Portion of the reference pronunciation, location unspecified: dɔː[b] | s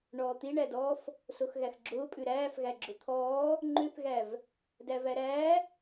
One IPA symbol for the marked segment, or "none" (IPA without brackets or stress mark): f